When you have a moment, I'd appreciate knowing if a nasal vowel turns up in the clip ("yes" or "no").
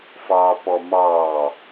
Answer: no